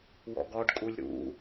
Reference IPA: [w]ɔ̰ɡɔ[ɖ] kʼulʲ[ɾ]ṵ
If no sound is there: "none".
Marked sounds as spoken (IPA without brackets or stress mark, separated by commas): w, ɖ, ɾ